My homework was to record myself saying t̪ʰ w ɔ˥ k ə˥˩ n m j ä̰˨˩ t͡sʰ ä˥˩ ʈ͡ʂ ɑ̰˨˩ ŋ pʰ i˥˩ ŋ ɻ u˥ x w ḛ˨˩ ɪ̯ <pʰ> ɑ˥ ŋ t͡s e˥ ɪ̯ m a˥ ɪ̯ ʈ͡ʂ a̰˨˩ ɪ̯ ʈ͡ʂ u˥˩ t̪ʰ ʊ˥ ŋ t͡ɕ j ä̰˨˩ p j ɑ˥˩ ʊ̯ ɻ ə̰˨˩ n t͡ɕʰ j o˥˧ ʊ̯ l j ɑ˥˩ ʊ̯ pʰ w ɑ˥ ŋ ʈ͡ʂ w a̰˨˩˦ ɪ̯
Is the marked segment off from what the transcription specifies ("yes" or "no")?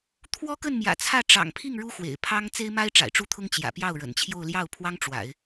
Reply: no